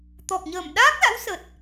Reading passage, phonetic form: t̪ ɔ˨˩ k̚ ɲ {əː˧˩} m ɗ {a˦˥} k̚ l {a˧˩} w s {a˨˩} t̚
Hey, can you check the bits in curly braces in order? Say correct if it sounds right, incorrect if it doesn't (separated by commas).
correct, incorrect, incorrect, incorrect